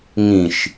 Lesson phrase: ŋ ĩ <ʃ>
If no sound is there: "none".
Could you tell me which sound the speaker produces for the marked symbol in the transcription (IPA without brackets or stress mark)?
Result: ʃ